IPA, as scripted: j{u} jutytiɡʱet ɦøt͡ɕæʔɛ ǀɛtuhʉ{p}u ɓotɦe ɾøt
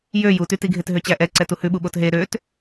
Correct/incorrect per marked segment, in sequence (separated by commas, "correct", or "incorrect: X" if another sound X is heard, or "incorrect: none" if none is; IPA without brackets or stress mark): incorrect: ø, incorrect: ɓ